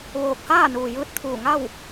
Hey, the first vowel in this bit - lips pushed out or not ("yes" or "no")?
yes